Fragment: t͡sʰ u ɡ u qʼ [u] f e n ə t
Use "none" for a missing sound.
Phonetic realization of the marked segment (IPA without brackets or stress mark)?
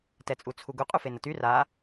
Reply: u